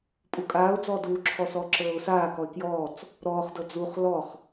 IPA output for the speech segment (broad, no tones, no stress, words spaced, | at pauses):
pʼukʼaːʊ̯ d͡zɔːduː ǁʰɔsɔǁɤːʊ̯saː kɔɪ̯kjɔːt͡s | ɾɔːχ dɤd͡zuχ lɔχ